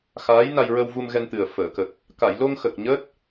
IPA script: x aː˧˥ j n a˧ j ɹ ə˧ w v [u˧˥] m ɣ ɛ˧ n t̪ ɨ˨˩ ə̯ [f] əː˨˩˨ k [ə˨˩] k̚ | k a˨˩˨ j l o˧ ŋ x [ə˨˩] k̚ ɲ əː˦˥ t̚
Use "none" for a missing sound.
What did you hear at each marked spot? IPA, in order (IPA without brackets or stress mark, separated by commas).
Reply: u˧, f, ə˨˩, ə˨˩